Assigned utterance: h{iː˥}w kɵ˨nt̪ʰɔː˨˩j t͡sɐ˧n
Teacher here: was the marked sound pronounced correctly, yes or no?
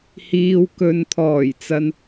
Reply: no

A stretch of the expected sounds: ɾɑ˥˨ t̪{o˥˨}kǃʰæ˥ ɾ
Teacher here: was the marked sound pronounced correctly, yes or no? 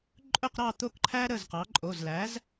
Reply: yes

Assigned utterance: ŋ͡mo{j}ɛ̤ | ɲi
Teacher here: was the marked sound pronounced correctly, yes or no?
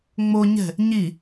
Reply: no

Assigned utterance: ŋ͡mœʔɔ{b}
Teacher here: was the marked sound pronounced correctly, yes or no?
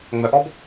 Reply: yes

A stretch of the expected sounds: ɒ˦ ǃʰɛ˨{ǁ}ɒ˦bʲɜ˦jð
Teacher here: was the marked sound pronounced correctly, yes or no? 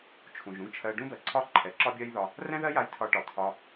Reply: yes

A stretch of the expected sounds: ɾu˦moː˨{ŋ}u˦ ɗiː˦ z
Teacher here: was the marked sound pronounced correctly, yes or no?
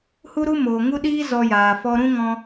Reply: yes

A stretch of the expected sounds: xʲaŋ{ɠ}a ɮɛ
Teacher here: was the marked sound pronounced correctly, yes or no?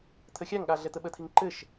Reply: yes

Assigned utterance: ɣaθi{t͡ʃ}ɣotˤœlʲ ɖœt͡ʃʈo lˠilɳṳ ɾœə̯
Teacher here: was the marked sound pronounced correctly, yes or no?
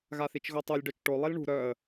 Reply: yes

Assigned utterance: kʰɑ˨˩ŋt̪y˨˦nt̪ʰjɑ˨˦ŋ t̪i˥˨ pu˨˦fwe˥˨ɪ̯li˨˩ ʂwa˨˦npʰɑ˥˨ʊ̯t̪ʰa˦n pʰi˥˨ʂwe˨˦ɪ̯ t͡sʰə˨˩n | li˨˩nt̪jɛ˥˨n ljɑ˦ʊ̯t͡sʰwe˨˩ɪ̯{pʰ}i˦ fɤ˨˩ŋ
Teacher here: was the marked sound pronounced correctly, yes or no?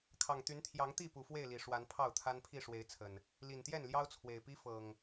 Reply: no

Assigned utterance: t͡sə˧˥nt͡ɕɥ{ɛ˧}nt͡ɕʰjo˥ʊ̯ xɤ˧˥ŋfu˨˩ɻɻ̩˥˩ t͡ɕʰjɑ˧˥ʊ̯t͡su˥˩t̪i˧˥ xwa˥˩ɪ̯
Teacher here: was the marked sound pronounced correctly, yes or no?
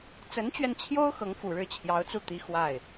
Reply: yes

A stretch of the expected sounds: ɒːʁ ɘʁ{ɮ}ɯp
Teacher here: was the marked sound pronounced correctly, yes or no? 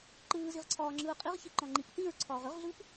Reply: yes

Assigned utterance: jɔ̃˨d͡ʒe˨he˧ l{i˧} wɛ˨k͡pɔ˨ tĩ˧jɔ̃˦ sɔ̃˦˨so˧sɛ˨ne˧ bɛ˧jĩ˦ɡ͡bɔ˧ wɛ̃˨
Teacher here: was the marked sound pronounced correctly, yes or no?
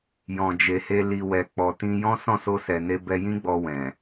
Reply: no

